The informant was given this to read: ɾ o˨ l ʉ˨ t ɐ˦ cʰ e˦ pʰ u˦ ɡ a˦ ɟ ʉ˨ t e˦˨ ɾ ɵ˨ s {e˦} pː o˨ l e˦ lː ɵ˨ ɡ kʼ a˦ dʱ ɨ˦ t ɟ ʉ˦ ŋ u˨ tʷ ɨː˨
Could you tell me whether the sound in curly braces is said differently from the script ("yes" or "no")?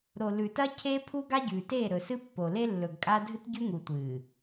yes